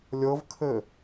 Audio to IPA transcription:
lʲɤvkʰɘ

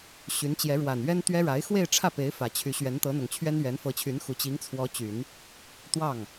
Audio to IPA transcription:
ɕy˧˥n t͡ɕjɛ˧˥ ɻwa˨˩nɥɛ˥nt̪ɥɛ˥ ɻa˧˥ɪ̯xwe˥˧ɪ̯ʈ͡ʂʰä˥˩pe˧˥ɪ̯ fä˨˩t͡ɕʰy˧˥ ɕɥɛ˧˥nt̪ɤ˧˥n̪ʊ˨˩ŋt͡ɕʰɥɛ˥n ɥɛ˧˥nfɤ˧˥t͡ɕʰy˧˥n xu˨˩t͡ɕi˧˥ŋt͡sʰwɔ˧˥t͡ɕy˨˩˦n | t̪wɑ˥˩ŋ

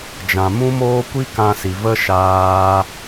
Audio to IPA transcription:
d͡ʒã˨mũ˦moː˦ kʷi˦kã˧si˨və˦ ʃaː˦

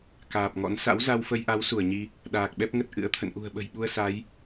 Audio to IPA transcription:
kaː˨˩p̚ŋɔ̰˧˥n sa̰˧˥wza˧wfə˧jʔa˨˦w su˧˩ə̯ɲi˧ | ɗaː˨˩k̚ɓɛ˦˥p̚ŋə˦˥t̚ ʔɨ̰˧˥ə̯t̪ʰə̰˧˨n ʔṳ˨˩ə̯ɓə̤˨˩jɓu˧ə̯ sa˨˦j

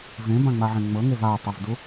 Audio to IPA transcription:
vẽbãŋ͡maʕẽ ŋ͡mɤŋev atˤɯvdu

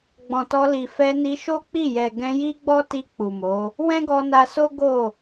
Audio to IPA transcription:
ɡ͡bɔ̃˨tɔ˧li˨ fɛ˧ni˧ ʃo˦k͡pi˦˨jɛ˨ ɡɛ̃˧ji˦ɡ͡bɔ˦ti˧ k͡pu˨mo˨˦ | wɛ̃˦ɡɔ˧na˧so˦ ɡo˦˨

